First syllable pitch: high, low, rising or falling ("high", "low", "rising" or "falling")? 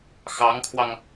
rising